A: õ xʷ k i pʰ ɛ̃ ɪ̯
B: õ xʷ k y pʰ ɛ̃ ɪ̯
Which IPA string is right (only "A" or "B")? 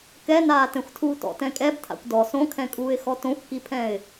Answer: A